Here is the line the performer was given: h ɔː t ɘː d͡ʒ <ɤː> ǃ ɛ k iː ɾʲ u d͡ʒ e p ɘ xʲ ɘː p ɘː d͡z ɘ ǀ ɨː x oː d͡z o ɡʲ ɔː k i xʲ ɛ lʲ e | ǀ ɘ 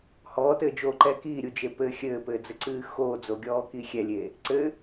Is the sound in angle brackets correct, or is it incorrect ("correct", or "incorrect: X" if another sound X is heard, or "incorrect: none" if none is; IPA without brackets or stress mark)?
incorrect: oː